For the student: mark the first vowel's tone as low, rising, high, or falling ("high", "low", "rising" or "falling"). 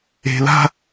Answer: low